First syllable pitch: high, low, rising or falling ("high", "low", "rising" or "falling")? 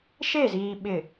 falling